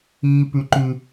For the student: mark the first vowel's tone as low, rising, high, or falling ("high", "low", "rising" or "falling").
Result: high